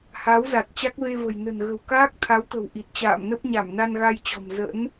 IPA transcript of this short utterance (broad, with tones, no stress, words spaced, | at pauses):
ha˨˦w za˨˩t̚t͡ɕa˦˥k̚ve˧ və̤˨˩j nə̤˨˩nɣə̤˨˩wkaː˦˥k̚ t̪ʰa˨˦wt̪ə̤˨˩w ʔi˨˩t̚t͡ɕa̰ː˧˨m nə˦˥p̚ɲa˧˩mna˧n ɣa˧jt͡ɕɔ̤˨˩m zə̰˧˥n